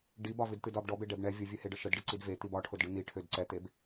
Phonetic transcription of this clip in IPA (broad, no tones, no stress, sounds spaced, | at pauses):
ɖ i b ɒ v ɨ d t̪ ɨ d ɒ b ɖ ɔ b e ɖ ɛ b ɳ ɛ vʲ ʊ vʲ ɨ h e ɖ ə ʃ ə d ɖ ɨ ǀ i d v e t̪ i b ɒ ʈʰ ʊ d ɖ ɨ n̪ i ʈʰ ø d ǀ ɛ t̪ e b